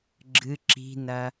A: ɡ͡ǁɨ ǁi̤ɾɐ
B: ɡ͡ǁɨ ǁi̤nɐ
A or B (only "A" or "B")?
B